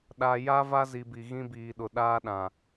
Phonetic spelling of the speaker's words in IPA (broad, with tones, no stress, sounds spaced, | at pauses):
ɗ a˨ j a˦ v a˦ z i˨ b i˨ ɣ ĩ˦ b iː˨ ɗ ʊ˨ ɗ aː˦ ɗ ã˨